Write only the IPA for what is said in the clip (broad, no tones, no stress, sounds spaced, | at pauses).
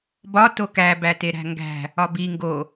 b ɒ t o k æ b æ t e ɾ æ̤ ŋ ɡ æ̤ | ɒ b i ŋ ɡ o